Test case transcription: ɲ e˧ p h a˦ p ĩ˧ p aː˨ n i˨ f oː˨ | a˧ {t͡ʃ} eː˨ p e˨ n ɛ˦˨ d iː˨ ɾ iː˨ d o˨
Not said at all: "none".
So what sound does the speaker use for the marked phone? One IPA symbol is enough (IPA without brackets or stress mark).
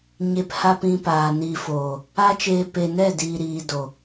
t͡ʃ